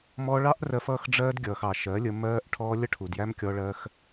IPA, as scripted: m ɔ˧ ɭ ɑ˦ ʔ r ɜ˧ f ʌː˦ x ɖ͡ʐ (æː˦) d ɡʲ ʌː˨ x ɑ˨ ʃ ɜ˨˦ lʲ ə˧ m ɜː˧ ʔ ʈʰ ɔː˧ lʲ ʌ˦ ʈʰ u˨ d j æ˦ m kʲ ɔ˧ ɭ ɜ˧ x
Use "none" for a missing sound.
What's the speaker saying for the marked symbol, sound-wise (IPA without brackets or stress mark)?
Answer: ɜː˦